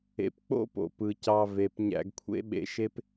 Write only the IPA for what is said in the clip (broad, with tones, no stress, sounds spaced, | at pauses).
ḛ˨ p k͡p o̰˦ p o̰˨ p ɯ˨ c ɑ˧ v e˨ p ɲ æ̰˧ ɡ kʷʰ ḛ˦ ɓ ḛ˧ ʃ e˦ p